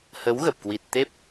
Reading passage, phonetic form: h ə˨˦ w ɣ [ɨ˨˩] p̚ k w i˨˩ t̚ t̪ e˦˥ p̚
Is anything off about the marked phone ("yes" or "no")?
yes